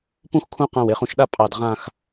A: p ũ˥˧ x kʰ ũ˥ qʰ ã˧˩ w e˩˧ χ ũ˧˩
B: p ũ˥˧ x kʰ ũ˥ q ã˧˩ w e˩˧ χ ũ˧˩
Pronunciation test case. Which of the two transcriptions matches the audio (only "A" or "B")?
B